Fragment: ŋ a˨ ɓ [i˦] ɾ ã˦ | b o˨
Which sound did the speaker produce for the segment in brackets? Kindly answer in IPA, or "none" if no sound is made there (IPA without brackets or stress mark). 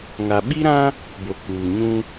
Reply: i˦